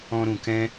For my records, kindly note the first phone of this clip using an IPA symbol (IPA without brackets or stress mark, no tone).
ɔ̃